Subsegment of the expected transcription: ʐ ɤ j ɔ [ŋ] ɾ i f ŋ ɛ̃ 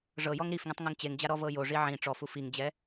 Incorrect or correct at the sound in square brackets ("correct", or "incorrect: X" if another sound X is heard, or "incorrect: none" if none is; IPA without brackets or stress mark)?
correct